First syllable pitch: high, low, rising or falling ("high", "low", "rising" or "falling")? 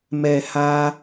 low